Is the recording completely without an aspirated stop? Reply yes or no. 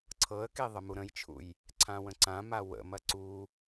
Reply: no